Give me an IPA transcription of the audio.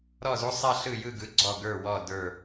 ɾ ɔ˧˩ z u˧ sˤ a˥˧ ɬ ɯ˧˩ j ɯ˧˩ ɡ ɯ˩˧ ɡ͡ǀ ɔ˧˩ ɡ ə˞˧˩ w ɔ˧˩ d ə˞˧˩

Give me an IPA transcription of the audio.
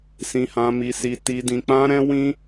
s ĩ˧ h ã˧ m i˧ s i˧ t i˧ d ĩ˧ k͡p ã˦ ɾ ɛ̃˦ w ĩ˦

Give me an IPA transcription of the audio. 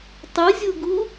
tˤ ɨ zʲ u ɡ u

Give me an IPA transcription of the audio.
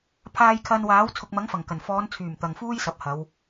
pʰ aː˧ j kʰ ɐ˧ n w aː˨˥ w t͡sʰ ʊ˨ k̚ m ɐ˨˥ ŋ f ɐ˨˩ ŋ k ɐ˨˩ n f ɔː˨˧ n t͡sʰ yː˨˩ m t̪ ɐ˨ ŋ f uː˥ j s ɐ˨ p̚ h ɐ˨˧ w

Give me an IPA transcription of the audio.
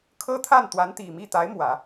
kʰ ɤ˥ t̪ʰ a˥˩ n t̪ w a˧˥ n t̪ i˨˩ m i˥˩ t̪ a˧˥ ɪ̯ m w ä˨˩˦

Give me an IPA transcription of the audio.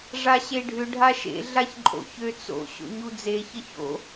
ʐ a ɕ e ɖʱ ʏ ɖʱ a ʃ ḛ ɮ a ç ǃʼ o̰ ç ø t͡s o̰ ɕ o̰ ɲ u d͡z e ç ə ç o̰

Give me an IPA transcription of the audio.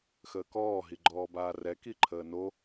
x əː k ɔː ɦ i ɡ͡ǃ ɔː b aː r ɛ k i ǃʰ əː n o

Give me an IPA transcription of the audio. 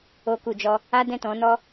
o˦ k u˧ d͡ʒ ɔ˦ | a˦ d ɛ̃˦˨ t ɔ̃˨˦ n ɔ˦

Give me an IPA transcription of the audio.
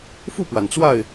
f u˥˨ p w a˩ n t͡s w a˥˨ ɪ̯

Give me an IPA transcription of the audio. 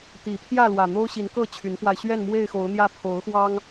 t̪ i˨˩ pʰ j ä˥˨ l w ä˨˩ n̪ o˦ ʊ̯ ɕ i˨˦ n k ɤ˥˨ t͡ɕʰ y˨˦ n f w a˧ ɪ̯ ɕ ɥ ɛ˥˨ n m w e˥˨ ɪ̯ x o˨˦ ʊ̯ n̪ j ä˦ pʰ o˨˦ ʊ̯ x w ɑ˦ ŋ

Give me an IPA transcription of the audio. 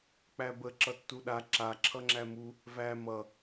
k͡p æ b ə ǁ ʌ tː u ɗ a ǁ a ǁʰ ʌ ŋ͡ǁ æ m u | v æ m ʌ

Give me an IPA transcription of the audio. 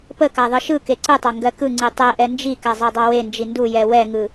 p ə k a ðˤ ɯ ʃ ɯ k e ǀ ɯ tˤ ɑ ŋ ɡ ɜ k ɯ ŋ͡ǀ i tˤ ɛ ʔ ɛ n d͡ʒ i k a zˤ ɜ dˤ ɑ w e n d͡ʒ i n d u j ɛ w ɛ ŋ ɯ

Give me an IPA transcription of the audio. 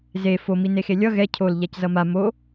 z e f o m i n e x e lʲ ʌ ɣ ɛ cʰ o l ʎ a c z ʌ m a m o

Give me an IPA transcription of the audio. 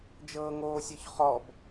d͡ʒ ɤː ŋ oː sʲ ɔ ç χ ɔ b

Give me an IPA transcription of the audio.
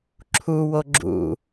ǁʰ u w o ɡ͡ǁ ṵ

